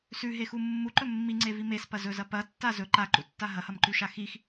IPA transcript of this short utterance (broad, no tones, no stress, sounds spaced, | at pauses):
s ʉ ɦ e x u mː u ǃ ɵ mː i ŋ͡ǀ e v i m e s p ɐ z ɵ z ɐ p ɐ tː a z ɵ ǃ a ǃ ṵ tː a ɦ ɐ h ɐ m ǃ ʉ ʃ a x i x